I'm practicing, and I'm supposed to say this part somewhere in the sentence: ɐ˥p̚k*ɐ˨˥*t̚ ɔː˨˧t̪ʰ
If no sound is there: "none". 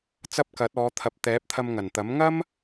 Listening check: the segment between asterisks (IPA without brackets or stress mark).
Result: ɐ˨˥